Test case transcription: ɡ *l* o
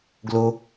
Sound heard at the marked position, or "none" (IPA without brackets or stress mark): l